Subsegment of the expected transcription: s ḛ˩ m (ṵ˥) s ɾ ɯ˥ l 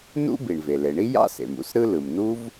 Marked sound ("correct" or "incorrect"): correct